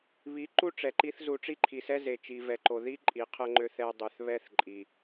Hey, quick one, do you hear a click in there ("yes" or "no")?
yes